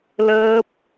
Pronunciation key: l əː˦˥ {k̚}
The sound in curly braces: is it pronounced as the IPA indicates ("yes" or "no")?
no